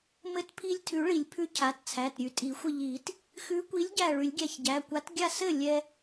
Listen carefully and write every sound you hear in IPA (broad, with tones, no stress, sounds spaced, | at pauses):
m ɘ˧ t pʰ i˧ lʲ tʰ ʉ˨˩˦ ɭ i˨˩˦ lʲ pʰ ʉ˨˥ cʰ a˩˧˩ t t͡sʰ æ˩˧˩ t ɾʲ ʉ˨˩˦ tʼ i˨˩˦ xʷ ɘ˧˩ ʎ i˨˩˦ t | x ʉ˨˥ kʷ i˨˥ lʲ ɟ æ˧˩ ɭ ʉ˨˩˦ lʲ ɡʲ æ˧ ç ɟ æ˩˧˩ kʷ a˨˥ t ɡʲ a˥˩ s ɘ˥˩ lʲ ɛ˧